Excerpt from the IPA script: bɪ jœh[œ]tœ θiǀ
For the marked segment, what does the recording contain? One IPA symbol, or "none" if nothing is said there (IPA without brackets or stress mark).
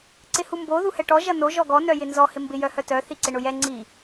œ